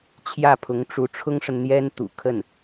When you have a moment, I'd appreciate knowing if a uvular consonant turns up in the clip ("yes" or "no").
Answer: no